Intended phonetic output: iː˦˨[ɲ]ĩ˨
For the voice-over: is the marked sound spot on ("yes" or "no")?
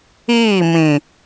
no